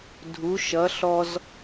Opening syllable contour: rising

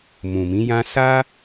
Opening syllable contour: low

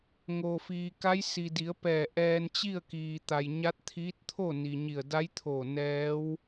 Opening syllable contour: low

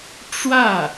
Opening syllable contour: falling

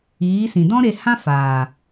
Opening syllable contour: rising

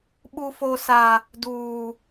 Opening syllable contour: high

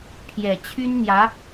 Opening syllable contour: low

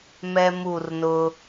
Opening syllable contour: high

